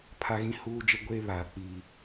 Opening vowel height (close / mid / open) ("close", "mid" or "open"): open